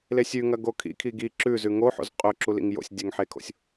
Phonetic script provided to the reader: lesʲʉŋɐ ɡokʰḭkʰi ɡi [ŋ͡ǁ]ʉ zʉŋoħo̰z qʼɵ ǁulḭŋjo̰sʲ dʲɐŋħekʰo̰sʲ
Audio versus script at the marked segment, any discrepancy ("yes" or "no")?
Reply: yes